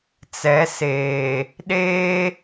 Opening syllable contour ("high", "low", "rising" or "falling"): rising